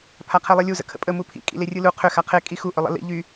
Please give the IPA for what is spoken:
pʰ a qʰ e lˠ e lʲ u z ə̰ kʰ ə̰ pʼ ə m u pʰ ḭ kʼ ḭ l e rʲ ɯ l u qʰ ʏ x a qʰ e kʼ i x u ʔ ʏ lˠ ə̰ l ḭ ʎ y

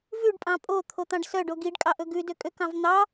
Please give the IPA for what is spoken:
v ʉ ɖ pʼ ɑ̃ pʼ o t̪ʰ o t̪ ɑ̃ ɖ s œ ɖ o ɡ i ɖ kʼ ɑ ʔ ɵ ɡ ʉ d ø kʼ ø k ɑ̃ v n̪ ɑ

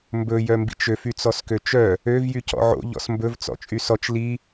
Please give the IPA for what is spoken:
m b ɵ j œ m b ḭ t͡ʃ ø f y t͡s ɔ s k ø t͡ʃ œ | ø v j y c ɔ̰ ʕ o̰ ʎ ɔ̰ s m b ɵ v t͡s ɔ̰ t͡ʃʼ y s ɔ t͡ʃ l i

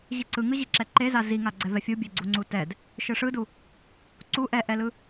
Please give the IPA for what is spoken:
ʑ i ǀ ɯ ŋ ɯ ʑ i ǁ ɛ ǃ e z a z i ŋ a ɡ͡ǀ ɛ v ɛ fʲ u bʲ e ɡ͡ǀ u ŋ͡ǀ u t ɛ d | ʃ ɯ ʂ ɯ d u | ǀ u ʔ ɛ ʔ ɛ l ɯ

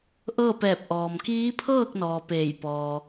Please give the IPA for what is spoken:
ʔ ɤː˥˨ p ɛː˧˩ p̚ ʔ ɔː˩ m k iː˧˥ pʰ ɤː˥˨ k̚ n ɔː˩ p eː˧˩ j p ɔː˩

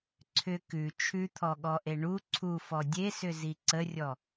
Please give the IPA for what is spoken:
ǀʰ ʏ k ʉ t͡ʃʰ ʉ t̪ʰ ɔ ɠ ɔ ʔ e ɳ u ǀʰ u f ɔ dʲ e s ʏ z i ǀ ə rʲ ɔ

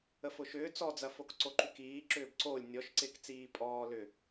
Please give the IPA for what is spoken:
ə f ʊ ʃ ʏː t͡s ɔ d͡z ɐ f o k ǀ o ǃ y k iː ǁ ʏː b ǀ o lʲ nʲ ɔ ʃ ǀ ɪː k t͡s iː pʼ ɔː l ʏ

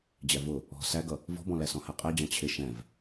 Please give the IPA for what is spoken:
d͡ʑ æ v ʊ | ɔ̤ s æ ɡ ʌ | v ɔ̤ b ɔ̃ l æ s ɔ̃ h æ qʼ ɛ d͡ʑ ɑ̃ t͡ɕʰ ɪ ʃ ɛ̃ v

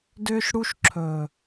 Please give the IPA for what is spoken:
d ʏː˦ ʃ ɽ u˦ ʃ ǁʰ ɵː˨

